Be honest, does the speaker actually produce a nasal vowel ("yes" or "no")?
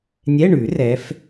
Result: no